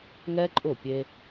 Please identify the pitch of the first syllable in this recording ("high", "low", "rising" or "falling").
high